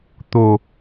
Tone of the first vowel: low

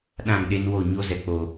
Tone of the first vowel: falling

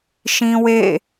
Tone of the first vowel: high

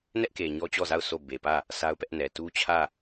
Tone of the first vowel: high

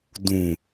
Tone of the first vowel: low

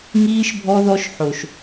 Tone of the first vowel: high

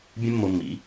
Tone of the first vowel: high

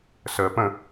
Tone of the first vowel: low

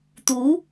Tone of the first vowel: rising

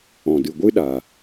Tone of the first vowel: low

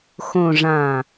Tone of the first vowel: low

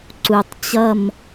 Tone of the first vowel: low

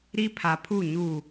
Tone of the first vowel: high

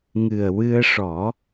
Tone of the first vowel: low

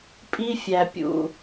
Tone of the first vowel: high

